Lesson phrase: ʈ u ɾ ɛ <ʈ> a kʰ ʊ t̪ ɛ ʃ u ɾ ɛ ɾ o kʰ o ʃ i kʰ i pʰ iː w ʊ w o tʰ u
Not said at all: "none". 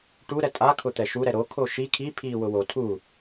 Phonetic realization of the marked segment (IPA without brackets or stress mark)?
tʼ